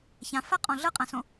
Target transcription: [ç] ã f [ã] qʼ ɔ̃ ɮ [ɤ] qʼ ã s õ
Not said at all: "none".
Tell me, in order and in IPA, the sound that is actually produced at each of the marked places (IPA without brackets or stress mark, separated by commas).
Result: ç, a, ɤ